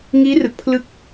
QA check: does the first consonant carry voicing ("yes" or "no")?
yes